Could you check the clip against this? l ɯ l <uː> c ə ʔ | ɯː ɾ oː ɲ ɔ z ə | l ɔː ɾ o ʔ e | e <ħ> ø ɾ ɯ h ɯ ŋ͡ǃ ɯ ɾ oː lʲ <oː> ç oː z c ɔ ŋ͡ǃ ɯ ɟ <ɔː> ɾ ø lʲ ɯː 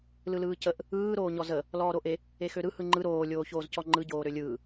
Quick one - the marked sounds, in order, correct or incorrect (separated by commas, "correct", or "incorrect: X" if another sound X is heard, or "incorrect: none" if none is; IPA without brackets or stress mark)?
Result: incorrect: ɯː, incorrect: x, correct, incorrect: oː